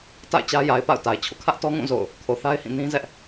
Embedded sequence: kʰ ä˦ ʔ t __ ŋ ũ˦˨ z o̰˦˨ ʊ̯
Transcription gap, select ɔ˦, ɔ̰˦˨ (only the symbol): ɔ˦